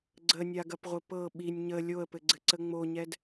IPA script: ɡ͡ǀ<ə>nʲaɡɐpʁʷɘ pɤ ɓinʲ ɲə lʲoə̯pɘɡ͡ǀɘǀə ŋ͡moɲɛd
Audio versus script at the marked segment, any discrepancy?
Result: no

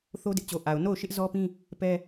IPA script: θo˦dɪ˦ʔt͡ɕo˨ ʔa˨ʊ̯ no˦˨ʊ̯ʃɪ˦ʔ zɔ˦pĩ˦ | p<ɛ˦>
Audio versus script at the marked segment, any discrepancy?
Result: no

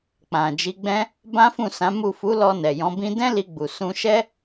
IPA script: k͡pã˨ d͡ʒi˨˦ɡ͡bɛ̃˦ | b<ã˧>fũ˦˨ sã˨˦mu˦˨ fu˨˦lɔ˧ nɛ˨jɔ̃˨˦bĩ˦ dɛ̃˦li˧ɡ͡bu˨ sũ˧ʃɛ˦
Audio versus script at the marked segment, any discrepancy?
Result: yes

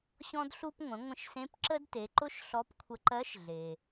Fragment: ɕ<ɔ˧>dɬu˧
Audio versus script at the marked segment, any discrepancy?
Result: yes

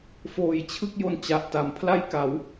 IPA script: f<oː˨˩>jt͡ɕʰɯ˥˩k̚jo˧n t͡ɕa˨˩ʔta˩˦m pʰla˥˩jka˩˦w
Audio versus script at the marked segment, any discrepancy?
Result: no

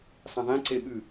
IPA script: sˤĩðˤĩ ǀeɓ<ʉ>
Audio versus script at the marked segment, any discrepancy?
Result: no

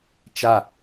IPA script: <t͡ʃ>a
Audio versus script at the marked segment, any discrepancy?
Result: no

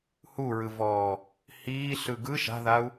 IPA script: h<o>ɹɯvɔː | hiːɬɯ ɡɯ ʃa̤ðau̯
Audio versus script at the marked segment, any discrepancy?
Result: yes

